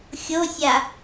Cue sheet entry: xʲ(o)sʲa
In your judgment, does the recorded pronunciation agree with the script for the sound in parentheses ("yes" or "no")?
yes